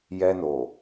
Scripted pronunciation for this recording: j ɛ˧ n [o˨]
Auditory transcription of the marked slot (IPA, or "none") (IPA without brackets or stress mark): o˨